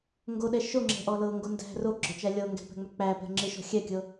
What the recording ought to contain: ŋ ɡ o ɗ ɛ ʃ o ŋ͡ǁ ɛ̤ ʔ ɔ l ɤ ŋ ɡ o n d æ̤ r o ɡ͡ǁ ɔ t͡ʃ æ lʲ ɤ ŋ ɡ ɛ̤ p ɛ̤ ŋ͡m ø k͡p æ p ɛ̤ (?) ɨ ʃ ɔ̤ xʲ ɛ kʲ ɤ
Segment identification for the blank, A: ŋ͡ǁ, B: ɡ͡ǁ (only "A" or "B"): A